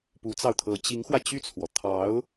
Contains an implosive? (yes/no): no